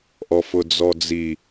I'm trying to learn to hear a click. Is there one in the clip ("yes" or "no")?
no